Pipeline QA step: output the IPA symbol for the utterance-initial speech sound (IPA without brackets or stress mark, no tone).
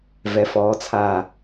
v